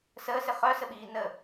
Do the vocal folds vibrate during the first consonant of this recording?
no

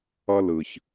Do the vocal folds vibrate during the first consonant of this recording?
yes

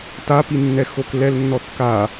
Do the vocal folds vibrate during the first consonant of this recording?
no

